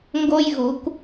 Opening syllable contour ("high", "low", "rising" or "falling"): high